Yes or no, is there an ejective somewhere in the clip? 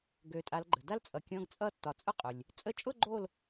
yes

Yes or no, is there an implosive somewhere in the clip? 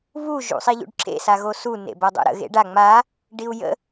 no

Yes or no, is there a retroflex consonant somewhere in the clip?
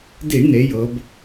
yes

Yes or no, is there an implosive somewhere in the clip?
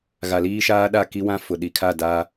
yes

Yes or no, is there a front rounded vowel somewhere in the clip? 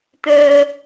yes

